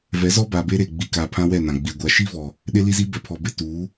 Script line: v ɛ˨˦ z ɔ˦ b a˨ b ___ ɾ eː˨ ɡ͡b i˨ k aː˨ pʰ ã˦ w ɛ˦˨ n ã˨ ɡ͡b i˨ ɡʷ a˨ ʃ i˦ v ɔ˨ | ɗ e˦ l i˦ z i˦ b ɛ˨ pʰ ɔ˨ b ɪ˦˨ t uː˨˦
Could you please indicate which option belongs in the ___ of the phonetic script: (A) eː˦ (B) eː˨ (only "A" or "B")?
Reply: A